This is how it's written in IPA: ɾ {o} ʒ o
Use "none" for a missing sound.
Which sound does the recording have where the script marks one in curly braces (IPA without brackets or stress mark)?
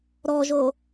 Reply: ɔ